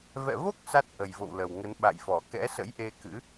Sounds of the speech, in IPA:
vɛ̰˧˨vo˦˥k̚ sa˦˥t̚ʔə˨˩jvo̰˧˨w lə˨˩wŋə˨˦n ɓa̰˧˨jfɔ˧˩ kɛ̰˧˥sə̰˧˥jʔe˧kɨ̰˧˥

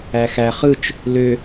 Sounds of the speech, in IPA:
æxæ χɯt͡ʃ | lø

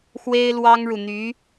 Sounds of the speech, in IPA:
xwe˥ɪ̯lwɑ˥ŋɻu˨n̪y˧˥

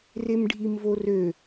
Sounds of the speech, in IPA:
remɖʱimvorø

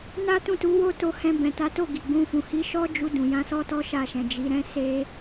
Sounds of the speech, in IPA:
na˦tũ˦˨tu˨˦wo˦ to˧ hɛ̃˧bɛ̃˨ta˨˦to˦˨ ɡi˨ɡ͡bũ˧fũ˨ hi˨˦ʃɔ˦d͡ʒu˧ dũ˨jã˧sɔ˦ tɔ˦ʃa˦˨ʃɛ̃˨ d͡ʒi˨˦ɾɛ̃˦se˦

